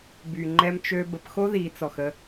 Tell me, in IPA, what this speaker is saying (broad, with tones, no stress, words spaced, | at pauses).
by˨ŋ͡ǃɛ˦mt͡ʃø˦ bə˨pxo˦ði˨t͡sɔ˨x ə˦